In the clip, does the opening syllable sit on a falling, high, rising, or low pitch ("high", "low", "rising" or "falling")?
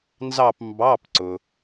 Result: falling